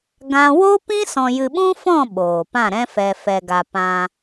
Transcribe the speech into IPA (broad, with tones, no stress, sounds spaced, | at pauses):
ɡ ã˦ w o˦ p ĩ˦ s ɔ̃˧ j ɨ˧ ɓ ũ˦ f ɔ̃˦˨ ɓ oː˨ p ã˦˨ ɾ ɛ̃˦ f ɛ˧ f ɛ˧ ɡ a˧ p ã˧